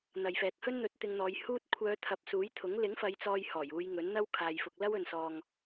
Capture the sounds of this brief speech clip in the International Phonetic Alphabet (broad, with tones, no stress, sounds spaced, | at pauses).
n̪ ɐ˨ j f ɛː˨ k̚ h ɵ˥ n n̪ ɵ˧ t̚ t̪ ɪ˧ ŋ n̪ ɔː˨˧ j h uː˧ t̚ kʷʰ œː˨˧ t̪ʰ ɐ˨ p̚ s uː˨˥ j t̪ʰ ʊ˨˥ ŋ l ɪ˨˥ ŋ f ɐ˨˧ j t͡s ɔː˧ j h ɔː˨˩ j uː˨˧ j ŋ ɵ˨˥ n n̪ ɐ˥ w kʰ aː˨ j f ʊ˨ k̚ l ɐ˥ w ɵ˨ n s ɔː˨ ŋ